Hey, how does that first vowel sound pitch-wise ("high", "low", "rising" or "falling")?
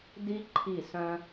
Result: high